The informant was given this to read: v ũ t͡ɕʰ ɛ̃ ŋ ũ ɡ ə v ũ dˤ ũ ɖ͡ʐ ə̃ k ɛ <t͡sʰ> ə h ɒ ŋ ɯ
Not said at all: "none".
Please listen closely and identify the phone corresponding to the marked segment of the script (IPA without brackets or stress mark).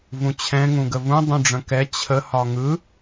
t͡ɕʰ